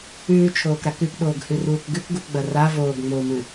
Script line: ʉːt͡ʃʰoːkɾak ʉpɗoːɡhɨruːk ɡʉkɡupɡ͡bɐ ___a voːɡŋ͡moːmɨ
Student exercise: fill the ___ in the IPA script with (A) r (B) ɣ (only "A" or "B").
A